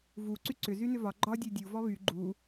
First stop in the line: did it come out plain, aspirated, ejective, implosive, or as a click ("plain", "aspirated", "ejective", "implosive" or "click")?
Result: click